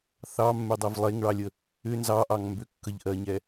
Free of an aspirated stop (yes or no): yes